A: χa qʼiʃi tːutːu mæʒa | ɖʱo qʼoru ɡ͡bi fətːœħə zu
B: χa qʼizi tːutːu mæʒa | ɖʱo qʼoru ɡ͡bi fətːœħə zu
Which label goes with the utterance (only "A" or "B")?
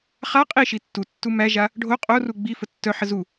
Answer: A